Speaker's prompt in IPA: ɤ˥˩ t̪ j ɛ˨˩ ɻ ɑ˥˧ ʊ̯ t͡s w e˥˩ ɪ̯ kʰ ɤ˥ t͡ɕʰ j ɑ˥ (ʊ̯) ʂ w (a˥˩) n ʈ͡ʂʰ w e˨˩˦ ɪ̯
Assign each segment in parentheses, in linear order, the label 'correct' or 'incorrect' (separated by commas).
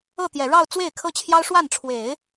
correct, correct